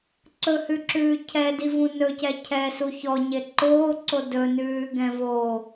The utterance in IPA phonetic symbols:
ǀɵhʉǁʉː cʰɛdivũ nɵcɛ cʰɛsu çɔɲe ǃoːǀo dɵnʉːɡɛ̃ vo

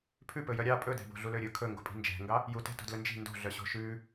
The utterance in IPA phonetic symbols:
pʰʉ pɵjœɾʲɑ pʼɵdɛ̤bo̤ ɮuløɾʲɵ kʰɵŋɡo̤pʼi̤ nd͡ʒɛ̤ŋɡɑ | jutɛ̤ to̤dlɵnd͡ʒi̤ ndo̤ɮœɕo̤ ʃʉ

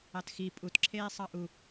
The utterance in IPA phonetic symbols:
ɑtxi pʼutǁʰeːsˤɑ ʔu

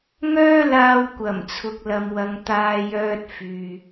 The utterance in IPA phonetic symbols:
ŋœː˥laː˧wkʷɐ˨˩m t͡sʰʊ˨k̚lɐ˨mwɐ˨˧ŋ t̪aː˥jœː˥t̚fyː˨

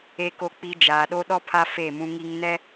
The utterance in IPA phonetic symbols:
e˨ko˨k͡pi˨ d͡ʒaː˨ɗo˦ ɗɔ˦pʰa˦ fe˦˨mũ˦ŋi˦ŋ nɛ˦

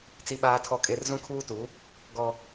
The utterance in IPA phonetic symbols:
t͡si˦ɓaː˦tʰɔ˦kʼe˦r zũ˦kʰuː˦tu˨˦ | ɡɔ˦

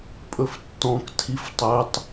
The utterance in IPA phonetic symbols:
pʼɵftːɔ̃k tʰiftˤɵtˤ

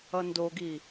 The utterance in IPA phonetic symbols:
ʌndoɡi

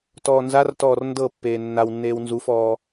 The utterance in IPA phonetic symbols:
tɔːnzartɔːr ndɤpːeː nːawnːeːw nzufɔː

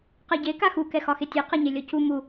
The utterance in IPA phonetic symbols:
qɛɟe kaxu kɛxɒxetʲe qɛɲelʲɔcu mu

